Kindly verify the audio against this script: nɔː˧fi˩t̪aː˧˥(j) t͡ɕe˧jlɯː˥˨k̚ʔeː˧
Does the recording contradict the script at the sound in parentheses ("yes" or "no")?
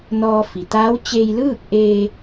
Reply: yes